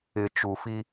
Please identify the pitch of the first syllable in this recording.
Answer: low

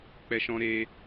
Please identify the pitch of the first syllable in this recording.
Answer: high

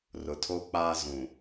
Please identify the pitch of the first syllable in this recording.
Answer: low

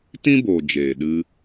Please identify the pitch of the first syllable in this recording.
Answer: high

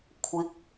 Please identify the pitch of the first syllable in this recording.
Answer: rising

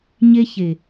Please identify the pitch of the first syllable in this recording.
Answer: high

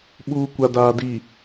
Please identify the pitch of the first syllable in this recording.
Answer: low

